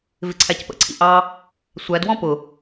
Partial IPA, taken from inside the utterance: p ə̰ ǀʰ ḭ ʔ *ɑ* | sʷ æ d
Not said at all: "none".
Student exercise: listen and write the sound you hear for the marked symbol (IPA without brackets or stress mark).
ɑ